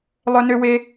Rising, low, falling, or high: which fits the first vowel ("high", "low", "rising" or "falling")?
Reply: high